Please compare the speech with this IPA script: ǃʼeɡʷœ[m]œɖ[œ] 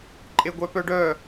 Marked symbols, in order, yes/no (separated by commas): no, yes